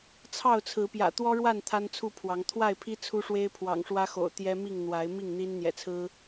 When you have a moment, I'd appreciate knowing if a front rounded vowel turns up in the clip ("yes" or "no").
no